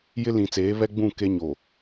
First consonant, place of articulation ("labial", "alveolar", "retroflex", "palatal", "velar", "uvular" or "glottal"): palatal